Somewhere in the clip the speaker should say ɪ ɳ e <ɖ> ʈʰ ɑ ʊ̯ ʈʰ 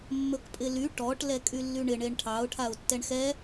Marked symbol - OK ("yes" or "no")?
no